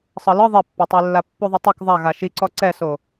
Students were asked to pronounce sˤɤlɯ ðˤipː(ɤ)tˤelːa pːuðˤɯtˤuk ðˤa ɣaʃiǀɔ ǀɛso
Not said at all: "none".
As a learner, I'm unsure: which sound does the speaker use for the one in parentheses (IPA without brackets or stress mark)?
ɔ